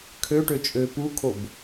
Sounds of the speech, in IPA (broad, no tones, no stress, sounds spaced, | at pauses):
kʰ ø ʈ ø t͡ʃʼ ø p u kʰ o b